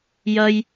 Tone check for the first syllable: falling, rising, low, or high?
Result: high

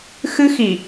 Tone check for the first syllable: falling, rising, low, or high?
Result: high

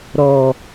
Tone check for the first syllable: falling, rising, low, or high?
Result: low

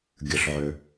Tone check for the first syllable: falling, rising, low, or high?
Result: low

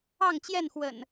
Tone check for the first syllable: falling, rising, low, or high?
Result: falling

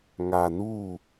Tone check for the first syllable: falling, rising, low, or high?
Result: low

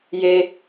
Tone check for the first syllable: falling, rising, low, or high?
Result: high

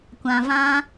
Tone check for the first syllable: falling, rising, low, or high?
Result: low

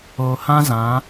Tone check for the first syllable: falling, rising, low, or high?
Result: low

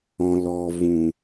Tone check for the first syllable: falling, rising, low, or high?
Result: low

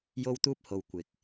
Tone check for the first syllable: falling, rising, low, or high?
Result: high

